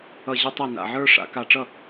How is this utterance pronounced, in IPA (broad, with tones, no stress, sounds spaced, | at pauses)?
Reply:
ʌ˥˩ ʑ ɨ˥ tˤ i˥˩ n a̰˧˩ ʕ ə˞˥ ʂ a̰˩˧ k a˧˩ ʈ͡ʂ ʌ˥˩